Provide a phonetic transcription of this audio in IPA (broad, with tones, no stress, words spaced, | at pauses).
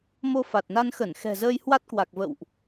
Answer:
mo˧fa˨˩t̚na˧nxə˧˩n xɛ̤˨˩zəː˧j hwa˦˥t̚kwa˨˩k̚ və̰˧˨wʔ